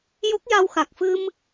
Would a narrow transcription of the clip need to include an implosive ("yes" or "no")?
no